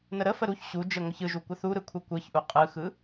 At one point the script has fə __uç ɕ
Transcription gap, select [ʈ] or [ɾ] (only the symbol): ɾ